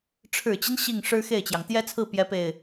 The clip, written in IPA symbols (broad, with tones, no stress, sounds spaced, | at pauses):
ʈ͡ʂʰ ɻ̩˨˩ t͡ɕ i˦ n ɕ i˥˩ ŋ ʂ ɻ̩˥ x e˥˩ ɪ̯ t͡ɕ j ɑ˩ ŋ t̪ j ɛ˥ t͡sʰ ɹ̩˥˩ p j ɛ˥ p e˥˩ ɪ̯